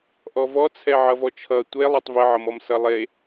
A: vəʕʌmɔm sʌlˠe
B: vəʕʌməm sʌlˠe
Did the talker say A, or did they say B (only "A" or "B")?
A